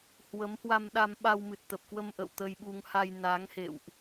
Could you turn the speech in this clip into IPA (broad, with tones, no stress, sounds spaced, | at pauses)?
h w ə˨˦ m h w a˧ m ɗ a˧ m ɓ a˧ w m ɨ˨˩ t̚ t̪ ə˨˩ p̚ k w ə˧ m ʔ ə̰˧˨ w t̪ ə˧ j ɓ u˧ ŋ h a˧ j n a˨˦ ŋ h ḛ˧˨ w ʔ